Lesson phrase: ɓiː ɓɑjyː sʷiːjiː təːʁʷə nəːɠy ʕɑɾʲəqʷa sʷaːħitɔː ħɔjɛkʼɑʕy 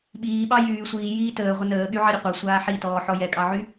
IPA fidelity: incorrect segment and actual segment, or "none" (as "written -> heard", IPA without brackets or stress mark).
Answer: none